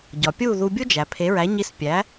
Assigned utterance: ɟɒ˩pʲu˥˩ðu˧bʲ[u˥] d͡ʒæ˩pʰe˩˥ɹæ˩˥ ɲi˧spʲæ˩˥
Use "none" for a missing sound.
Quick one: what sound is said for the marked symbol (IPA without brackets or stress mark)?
u˥